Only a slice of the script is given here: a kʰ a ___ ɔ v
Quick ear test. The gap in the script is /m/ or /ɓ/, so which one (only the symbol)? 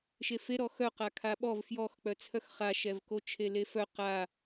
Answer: ɓ